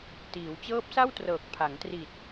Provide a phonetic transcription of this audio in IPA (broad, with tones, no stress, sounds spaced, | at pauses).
t iː˩˦ w t͡ɕ ɤː˦˥ p̚ s a˥˩ w t r ɤː˨˩ k̚ pʰ a˩˦ ŋ t r i˨˩ t̚